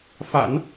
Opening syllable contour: low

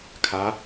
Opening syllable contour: rising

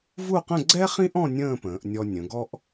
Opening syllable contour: falling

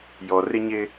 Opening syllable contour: low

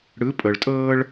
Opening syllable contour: rising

